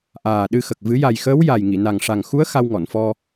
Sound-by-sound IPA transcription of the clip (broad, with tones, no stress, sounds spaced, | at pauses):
ʔ aː˨˩ ɗ ɨ˧ x ə˨˩ k̚ v ɨ˨˩˦ j a˨˩ j x əː˧˥ w j a˨˩ j ŋ i˨˩˨ n a˨˩ ŋ ʂ a˨˩ ŋ x u˧˥ ə̯ x a˧ w ŋ ɔ˨˩˨ n f ɔ˧